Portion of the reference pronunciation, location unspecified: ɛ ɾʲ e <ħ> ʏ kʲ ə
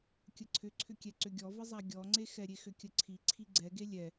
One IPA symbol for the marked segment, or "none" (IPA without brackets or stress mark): x